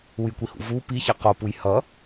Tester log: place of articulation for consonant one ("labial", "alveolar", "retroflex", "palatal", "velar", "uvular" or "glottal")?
palatal